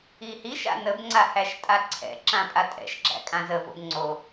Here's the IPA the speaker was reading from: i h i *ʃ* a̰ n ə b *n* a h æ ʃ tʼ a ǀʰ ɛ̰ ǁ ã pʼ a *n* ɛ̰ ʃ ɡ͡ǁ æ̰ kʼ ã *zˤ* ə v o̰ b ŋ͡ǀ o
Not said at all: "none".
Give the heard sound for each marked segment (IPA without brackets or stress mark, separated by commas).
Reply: ʃ, ŋ͡ǀ, tʼ, z